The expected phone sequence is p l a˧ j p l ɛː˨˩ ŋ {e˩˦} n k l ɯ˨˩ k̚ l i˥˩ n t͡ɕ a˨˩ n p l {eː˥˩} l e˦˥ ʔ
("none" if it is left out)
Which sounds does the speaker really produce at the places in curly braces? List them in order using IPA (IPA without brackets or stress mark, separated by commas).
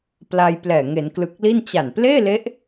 e˩˦, eː˥˩